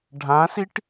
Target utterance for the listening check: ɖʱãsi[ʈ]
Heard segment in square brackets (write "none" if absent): ʈ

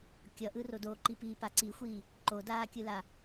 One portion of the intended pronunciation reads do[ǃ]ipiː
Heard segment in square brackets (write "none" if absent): ǃ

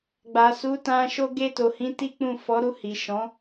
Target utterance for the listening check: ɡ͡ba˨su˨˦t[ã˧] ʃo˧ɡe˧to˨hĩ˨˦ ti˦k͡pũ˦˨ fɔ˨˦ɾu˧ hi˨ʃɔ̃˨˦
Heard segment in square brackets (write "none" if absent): ã˧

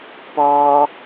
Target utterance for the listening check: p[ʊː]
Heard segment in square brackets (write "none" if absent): ɔː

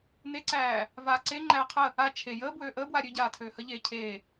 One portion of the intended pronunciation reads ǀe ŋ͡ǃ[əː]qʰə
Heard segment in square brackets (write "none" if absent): æː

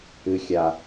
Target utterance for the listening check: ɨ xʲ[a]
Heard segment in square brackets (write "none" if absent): a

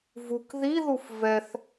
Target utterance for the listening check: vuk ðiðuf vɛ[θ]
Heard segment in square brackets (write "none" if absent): θ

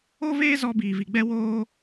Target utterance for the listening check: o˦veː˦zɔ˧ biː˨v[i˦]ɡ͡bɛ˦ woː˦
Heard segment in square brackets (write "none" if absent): i˨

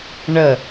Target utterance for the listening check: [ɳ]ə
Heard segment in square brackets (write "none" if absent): ɳ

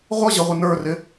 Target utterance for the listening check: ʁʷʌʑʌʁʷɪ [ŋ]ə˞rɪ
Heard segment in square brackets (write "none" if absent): n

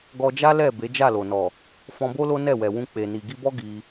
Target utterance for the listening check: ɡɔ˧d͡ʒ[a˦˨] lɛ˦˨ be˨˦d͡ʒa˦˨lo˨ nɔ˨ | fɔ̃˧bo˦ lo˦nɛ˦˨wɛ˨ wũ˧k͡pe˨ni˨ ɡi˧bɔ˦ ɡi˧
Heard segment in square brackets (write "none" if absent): a˦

